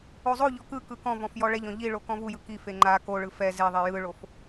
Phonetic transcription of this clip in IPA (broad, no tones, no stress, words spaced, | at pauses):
ozˤoʎɔ kɯkɯ kɔ̃vɔ̃f jɔɭɛʎɔ̃ ʎiɭo kɔ̃vujɯ kife ŋ͡ǃa koɭɯ fɛ zeðˤe jɯɭof